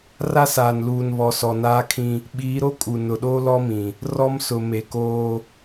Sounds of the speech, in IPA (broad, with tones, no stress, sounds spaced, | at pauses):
r a˦ s aː˨ n l uː˨ n β ɔ˨ s ɔ˨ n aː˦ kʰ ĩ˦ | ɓ iː˨˦ ɾ o˦ kʼ u˨ n ʊ˨ ɗ oː˦ l ɔ˦ m ĩ˨ | r ɔ˦ m s ʊ˨ m e˨ k oː˦